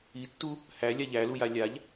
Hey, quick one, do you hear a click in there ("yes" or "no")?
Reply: no